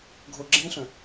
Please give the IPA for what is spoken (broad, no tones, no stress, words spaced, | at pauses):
ɡʱo ɡ͡ǁẽɬœ̃